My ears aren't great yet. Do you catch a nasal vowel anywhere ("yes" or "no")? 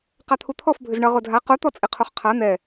no